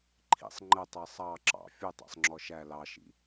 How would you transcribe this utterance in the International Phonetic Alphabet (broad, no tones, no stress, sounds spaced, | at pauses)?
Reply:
ǃʰ ḭ sˤ ŋ͡ǃ ə tˤ ɛ sˤ ɑ ǁ ɑ̰ fʲ u tˤ æ̰ sˤ ŋ͡ǁ ɔ ʃ æ l ɑ ʃ ḭ